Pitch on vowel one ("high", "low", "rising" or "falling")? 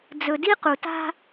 low